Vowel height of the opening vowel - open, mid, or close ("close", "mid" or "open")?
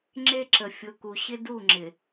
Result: mid